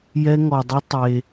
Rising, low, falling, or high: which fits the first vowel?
high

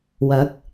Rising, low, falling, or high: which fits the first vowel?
rising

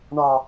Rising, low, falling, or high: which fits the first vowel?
low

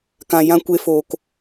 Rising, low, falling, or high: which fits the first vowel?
low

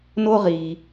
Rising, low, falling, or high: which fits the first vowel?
high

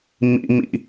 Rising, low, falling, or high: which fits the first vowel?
high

